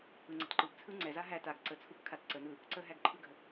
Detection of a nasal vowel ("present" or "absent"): absent